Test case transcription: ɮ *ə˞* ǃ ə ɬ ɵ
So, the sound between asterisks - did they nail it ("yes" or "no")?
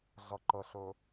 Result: no